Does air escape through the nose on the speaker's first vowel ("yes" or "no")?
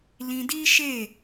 yes